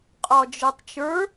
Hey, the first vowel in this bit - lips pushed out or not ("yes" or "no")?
yes